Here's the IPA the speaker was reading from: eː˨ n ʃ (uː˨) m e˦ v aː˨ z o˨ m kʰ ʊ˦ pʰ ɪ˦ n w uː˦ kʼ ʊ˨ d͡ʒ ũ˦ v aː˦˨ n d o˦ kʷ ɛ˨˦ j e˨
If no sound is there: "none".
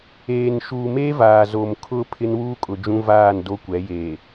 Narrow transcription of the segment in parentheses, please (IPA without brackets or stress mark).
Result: uː˨